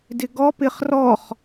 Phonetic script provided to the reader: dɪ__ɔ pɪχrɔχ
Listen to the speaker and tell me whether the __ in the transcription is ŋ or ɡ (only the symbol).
ɡ